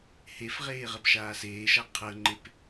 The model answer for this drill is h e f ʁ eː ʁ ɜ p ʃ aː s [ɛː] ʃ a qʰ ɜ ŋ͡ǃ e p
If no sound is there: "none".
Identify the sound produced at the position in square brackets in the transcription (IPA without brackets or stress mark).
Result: eː